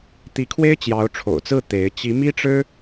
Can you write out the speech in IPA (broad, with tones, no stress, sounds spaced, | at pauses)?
t̪ i˧˥ kʰ w e˥ ɪ̯ t͡ɕ j ɑ˧˥ ʊ̯ ʈ͡ʂʰ o̰˨˩ ʊ̯ t͡s ɹ̩˥˩ t̪ e˧˥ ɪ̯ t͡ɕ i˧˥ m i˥ ʈ͡ʂ ɻ̩˥